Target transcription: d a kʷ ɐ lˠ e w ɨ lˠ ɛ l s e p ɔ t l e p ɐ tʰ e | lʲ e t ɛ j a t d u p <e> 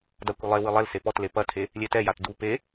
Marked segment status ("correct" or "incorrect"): correct